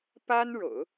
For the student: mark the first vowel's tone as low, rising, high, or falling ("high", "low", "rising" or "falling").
high